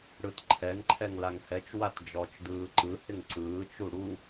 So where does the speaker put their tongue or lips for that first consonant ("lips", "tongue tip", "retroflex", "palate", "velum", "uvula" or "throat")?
retroflex